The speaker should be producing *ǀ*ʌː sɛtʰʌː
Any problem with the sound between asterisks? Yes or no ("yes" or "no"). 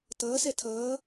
yes